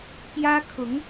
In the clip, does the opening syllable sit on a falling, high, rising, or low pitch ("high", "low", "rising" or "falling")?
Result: high